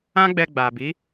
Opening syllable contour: high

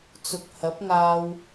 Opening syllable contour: low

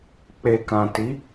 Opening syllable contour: low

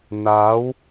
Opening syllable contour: rising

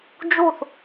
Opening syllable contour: falling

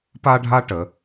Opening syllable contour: high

